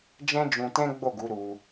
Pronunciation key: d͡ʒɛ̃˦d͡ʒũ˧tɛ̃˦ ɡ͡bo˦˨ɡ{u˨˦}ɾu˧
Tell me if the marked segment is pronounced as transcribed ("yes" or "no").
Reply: yes